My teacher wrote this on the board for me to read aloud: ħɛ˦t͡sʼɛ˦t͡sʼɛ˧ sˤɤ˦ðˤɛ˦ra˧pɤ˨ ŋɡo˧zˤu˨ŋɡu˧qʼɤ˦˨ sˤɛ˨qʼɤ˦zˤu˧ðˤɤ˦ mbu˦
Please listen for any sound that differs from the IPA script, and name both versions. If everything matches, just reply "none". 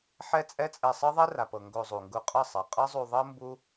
a˧ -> a˨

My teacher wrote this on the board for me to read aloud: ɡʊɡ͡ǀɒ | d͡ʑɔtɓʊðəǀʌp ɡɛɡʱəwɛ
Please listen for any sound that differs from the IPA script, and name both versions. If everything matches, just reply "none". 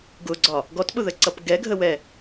d͡ʑ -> ɡ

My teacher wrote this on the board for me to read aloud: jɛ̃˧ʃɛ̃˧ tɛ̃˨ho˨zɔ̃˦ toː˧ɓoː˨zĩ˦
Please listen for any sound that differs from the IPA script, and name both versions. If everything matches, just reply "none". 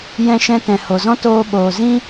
none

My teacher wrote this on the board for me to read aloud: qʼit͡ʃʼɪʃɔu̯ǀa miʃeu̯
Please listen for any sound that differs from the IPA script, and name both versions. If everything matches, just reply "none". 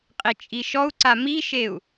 ɪ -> i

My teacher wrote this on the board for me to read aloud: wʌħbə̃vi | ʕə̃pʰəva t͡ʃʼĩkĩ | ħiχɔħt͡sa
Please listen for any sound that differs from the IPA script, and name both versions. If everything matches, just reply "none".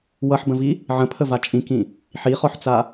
none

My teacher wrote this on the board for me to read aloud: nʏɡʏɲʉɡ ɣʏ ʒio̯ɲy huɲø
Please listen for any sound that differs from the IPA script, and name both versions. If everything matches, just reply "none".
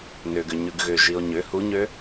y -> ʏ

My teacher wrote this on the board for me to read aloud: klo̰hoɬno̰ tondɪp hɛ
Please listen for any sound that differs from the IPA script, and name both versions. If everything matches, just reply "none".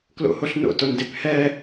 none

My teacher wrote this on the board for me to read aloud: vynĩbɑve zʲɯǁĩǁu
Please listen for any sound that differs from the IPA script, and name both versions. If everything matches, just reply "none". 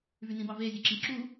none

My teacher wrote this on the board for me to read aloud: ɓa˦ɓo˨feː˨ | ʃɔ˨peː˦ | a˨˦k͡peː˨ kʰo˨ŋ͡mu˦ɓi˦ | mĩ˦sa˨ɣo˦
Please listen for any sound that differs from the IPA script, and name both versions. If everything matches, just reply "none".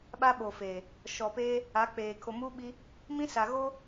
ŋ͡m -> m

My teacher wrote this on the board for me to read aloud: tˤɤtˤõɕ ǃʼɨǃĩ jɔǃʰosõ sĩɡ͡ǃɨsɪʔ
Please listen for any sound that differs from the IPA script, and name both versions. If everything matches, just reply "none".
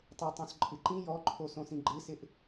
ɕ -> s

